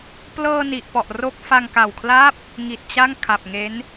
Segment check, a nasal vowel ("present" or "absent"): absent